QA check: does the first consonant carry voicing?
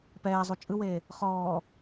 no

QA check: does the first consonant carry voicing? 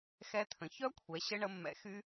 no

